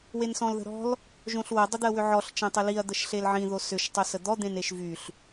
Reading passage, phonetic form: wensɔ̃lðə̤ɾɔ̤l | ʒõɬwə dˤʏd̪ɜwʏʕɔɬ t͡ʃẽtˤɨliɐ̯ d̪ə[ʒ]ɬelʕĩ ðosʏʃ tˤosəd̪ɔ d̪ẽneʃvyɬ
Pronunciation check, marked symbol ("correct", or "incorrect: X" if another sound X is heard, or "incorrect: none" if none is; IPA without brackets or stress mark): incorrect: ʃ